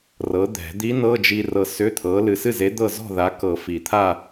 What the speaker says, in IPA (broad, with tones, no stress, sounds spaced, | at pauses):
r ɤ˨˥ d̪ ɛ̤˨˩˦ d̪ i˦˥ n ɤ˧˥˧ d͡ʒ i˧ r ɤ˧ s ʏ˧˥˧ t̪ʰ ɤ˨˥ l ɨ˧ s ɨ˥˨ z e˨˥ d̪ ɤ˥˨ z ɔ̤˥˨ ð a˨˥ k ɤ˨˩˦ f i˨˩˦ t̪ʰ a˥˨